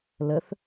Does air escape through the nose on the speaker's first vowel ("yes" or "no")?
no